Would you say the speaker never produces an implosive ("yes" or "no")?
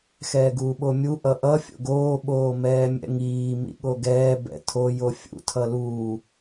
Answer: no